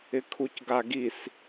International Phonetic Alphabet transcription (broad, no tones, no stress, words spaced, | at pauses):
ɪkʰucɡaɡis